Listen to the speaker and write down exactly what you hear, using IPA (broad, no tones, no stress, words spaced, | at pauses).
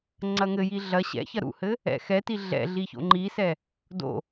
ŋ͡ǀɐŋɘji ɮɐ ɕɛ̰ çɐɾṵhɘ | ɛ̰xɛti ɮɛ̰ɮi ço̰ŋ͡ǃisɛ | do̰